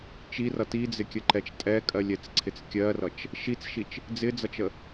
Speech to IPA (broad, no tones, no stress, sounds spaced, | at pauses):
t͡ʃ i r ʌ t i d͡z ɪ kʲ ə ǃ ɛ t͡ʃ tʼ ɛ kʼ ɜ lʲ ɛ t͡s ǀʰ ɪ t͡s kʲ ɜ r ʌ t͡ʃ | ʃ i t͡s ʃ i t͡ʃ | d͡z ɪ d͡z ʌ t͡ʃ ə